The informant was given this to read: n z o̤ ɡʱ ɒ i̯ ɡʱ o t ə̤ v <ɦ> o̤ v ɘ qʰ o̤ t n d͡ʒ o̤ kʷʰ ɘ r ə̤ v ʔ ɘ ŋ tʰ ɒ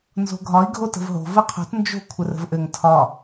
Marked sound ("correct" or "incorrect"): correct